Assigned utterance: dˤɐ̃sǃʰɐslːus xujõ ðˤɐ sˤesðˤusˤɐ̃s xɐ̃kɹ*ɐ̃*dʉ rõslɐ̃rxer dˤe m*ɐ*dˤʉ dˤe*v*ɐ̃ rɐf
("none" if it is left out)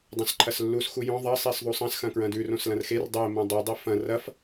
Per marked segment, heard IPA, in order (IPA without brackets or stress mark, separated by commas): ɐ̃, ɐ̃, f